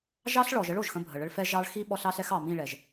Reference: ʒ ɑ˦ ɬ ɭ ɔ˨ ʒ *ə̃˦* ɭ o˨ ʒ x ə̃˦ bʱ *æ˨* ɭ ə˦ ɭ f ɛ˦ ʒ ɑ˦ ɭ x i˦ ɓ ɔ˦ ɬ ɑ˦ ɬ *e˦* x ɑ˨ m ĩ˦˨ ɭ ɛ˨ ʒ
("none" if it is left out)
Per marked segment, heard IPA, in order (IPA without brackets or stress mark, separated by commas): ə˦, ə˨, ɛ˦